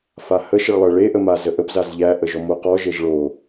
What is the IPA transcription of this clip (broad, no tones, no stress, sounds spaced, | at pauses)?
f a h ə ʃ ə ɭ lˠ ə ɭ e ʔ ə m a z ə ʔ ə p z a z ʎ æ ʔ ə ʒ ɔ m o q ɔ ʒ e ʒ ɭ o